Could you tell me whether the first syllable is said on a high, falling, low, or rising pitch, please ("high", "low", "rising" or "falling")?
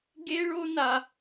high